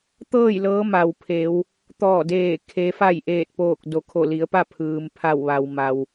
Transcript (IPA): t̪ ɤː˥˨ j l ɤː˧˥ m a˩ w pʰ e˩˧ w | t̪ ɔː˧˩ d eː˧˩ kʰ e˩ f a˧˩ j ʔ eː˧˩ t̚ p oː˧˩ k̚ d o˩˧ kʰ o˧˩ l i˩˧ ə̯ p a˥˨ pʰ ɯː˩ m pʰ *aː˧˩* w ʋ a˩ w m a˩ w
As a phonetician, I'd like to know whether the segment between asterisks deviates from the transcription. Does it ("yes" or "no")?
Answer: yes